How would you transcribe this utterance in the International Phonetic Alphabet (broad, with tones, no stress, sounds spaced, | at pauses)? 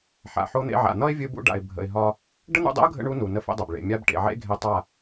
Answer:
ħ a̰˨ ħ o˧ n̪ ḛ˧ ʕ a̰˨ n̪ ʌ˦ ɪ̯ vʲ ɨ˧ b ṵ˧ ɖ a̰˨ ɪ̯ bʱ ə̰˨ ɪ̯ ɦ ɒ˧ | ɖ ə˦ n̪ ṵ˧ dˤ ḛ˦ ʊ̯ ɡʱ ə̰˧ ɳ u˦ n u˨ n ə˦ f ḛ˦ dˤ ʌ˨ b ɭ ḛ˨ mʲ a˧ b ʈ ḛ˨ ʕ ḛ˧ ɡʱ e˧ tˤ a˦˨